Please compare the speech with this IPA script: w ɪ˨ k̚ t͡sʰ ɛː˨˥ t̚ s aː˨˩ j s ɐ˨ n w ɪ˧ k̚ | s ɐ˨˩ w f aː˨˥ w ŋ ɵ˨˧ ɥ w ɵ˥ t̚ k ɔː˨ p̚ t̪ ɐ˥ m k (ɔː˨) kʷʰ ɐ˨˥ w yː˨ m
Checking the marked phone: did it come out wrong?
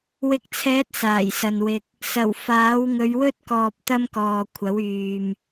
no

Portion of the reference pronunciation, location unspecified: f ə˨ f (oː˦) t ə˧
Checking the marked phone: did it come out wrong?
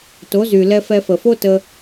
yes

